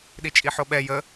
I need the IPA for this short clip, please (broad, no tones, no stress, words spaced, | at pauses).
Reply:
ɗit͡ʃʼiħoɓɛ jə